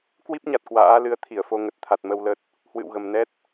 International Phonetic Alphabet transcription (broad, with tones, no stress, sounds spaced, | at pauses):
k w i˦˥ p̚ ɲ a˨˩ t̚ k w a̰ː˧˥ l ɨ˨˦ ə̯ t̪ʰ i˧˩ ə̯ f o˨˦ ŋ ə˨˩ t̚ t̪ʰ a˨˩ t̚ m ə˧ w l ə˦˥ t̚ | h w ɨ̰˧˨ w ɣ ə˨˩ m n ɛ˦˥ t̚